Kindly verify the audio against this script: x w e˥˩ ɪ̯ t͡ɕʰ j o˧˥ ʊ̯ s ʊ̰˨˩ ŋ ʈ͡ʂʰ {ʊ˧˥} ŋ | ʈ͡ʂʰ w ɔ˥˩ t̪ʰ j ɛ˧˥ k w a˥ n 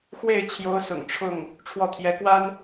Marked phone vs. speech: incorrect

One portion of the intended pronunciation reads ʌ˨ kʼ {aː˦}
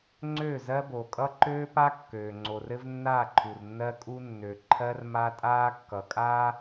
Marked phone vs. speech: correct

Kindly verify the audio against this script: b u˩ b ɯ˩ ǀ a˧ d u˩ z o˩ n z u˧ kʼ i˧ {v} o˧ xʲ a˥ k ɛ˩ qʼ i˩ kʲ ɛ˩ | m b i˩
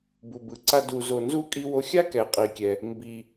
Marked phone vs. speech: incorrect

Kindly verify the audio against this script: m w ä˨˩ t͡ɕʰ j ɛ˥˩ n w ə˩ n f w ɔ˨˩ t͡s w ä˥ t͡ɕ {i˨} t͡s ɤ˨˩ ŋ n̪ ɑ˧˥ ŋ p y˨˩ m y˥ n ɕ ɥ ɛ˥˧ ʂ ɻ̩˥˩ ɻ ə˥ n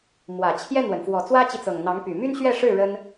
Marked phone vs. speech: correct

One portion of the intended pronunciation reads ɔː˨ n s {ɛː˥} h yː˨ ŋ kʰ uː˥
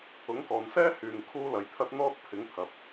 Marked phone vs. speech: correct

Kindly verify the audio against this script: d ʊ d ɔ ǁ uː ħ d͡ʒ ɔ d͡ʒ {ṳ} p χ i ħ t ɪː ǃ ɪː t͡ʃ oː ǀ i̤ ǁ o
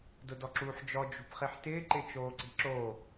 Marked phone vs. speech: correct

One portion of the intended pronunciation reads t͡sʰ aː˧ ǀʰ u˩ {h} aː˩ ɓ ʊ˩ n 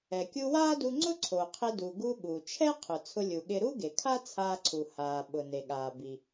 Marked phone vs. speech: correct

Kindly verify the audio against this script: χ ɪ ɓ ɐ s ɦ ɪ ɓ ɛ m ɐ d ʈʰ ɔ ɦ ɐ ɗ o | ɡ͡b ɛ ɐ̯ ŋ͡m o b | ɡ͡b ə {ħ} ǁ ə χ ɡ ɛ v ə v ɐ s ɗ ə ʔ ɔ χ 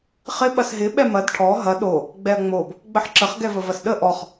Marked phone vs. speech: correct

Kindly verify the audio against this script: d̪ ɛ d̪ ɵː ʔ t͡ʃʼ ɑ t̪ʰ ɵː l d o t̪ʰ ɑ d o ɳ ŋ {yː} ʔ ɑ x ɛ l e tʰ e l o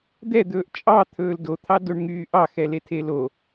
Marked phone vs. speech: correct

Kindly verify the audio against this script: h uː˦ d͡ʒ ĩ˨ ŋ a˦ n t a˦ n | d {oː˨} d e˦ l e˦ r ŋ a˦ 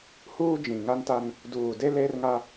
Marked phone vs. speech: incorrect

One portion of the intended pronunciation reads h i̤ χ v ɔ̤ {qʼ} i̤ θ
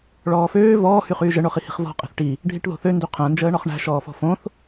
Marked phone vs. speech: correct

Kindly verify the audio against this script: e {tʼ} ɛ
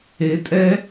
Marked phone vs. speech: correct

